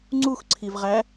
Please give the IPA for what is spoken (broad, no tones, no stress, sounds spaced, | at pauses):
ŋ͡ǀ u x ǀʰ i v ʁ æ